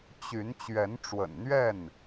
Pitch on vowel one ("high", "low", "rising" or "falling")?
rising